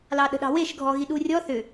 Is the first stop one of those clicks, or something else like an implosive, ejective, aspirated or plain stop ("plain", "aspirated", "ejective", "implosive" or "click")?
implosive